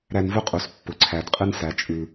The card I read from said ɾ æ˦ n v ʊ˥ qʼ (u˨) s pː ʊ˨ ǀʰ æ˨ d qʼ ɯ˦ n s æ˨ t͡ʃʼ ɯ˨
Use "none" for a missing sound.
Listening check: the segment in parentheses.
u˨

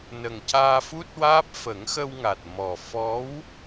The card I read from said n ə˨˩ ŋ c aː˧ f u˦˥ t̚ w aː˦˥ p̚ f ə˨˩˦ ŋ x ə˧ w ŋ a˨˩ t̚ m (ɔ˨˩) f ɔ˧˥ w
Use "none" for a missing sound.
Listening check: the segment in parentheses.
ɔ˨˩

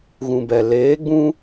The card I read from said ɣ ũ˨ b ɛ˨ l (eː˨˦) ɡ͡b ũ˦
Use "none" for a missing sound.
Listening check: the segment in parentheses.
eː˨˦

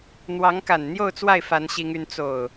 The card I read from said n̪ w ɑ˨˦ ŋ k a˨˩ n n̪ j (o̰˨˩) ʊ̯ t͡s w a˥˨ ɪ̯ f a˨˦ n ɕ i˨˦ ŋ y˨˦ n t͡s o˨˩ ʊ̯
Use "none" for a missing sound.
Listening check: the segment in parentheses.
o˥˨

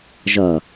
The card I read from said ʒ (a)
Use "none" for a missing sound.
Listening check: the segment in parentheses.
ʌ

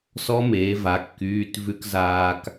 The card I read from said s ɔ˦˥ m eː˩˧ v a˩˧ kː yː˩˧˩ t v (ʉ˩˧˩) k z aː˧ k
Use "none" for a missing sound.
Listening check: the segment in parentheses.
ʉ˧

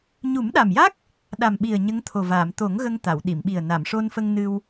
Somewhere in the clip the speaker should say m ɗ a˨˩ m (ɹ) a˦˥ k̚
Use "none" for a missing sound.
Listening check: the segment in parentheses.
j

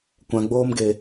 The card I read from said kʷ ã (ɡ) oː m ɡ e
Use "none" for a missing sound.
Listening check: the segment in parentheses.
ɡ͡b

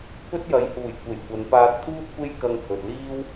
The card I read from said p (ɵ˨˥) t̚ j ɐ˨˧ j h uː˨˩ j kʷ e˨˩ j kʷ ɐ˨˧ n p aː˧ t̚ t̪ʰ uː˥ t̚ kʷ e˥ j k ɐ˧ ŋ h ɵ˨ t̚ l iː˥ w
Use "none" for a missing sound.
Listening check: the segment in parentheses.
ɵ˥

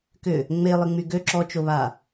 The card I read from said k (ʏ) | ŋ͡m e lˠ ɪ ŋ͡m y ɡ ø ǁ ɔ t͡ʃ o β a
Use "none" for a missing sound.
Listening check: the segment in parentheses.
ʏ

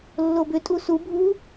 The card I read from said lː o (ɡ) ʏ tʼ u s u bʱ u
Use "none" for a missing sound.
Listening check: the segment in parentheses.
b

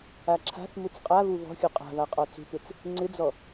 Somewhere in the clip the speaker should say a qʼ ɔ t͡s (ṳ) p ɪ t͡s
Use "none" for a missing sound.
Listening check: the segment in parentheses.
ṳ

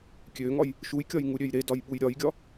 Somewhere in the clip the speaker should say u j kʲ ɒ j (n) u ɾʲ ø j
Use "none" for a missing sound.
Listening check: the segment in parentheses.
ŋ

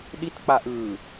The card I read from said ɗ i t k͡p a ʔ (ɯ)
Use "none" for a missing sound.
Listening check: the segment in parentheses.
ɯ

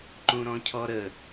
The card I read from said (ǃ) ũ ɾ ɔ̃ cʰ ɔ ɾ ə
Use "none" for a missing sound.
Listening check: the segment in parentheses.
ǃ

